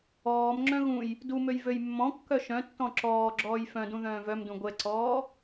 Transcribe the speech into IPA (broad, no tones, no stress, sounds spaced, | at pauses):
ɔː m ŋ͡ǁ œ̃ ɣ ũ j | d u m ø j v ø j mː ɔ̃ kː œ ʃ œ̃ tː ɔ̃ ǁ ɔː ɡ͡ǁ ɔː j f œ̃ d ũ ð œ̃ː v œ m d ũ ɡʷ ɛ ǀ ɔː